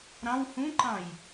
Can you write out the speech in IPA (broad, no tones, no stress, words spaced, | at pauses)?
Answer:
ɾɑ̃w hũǃɑ̃j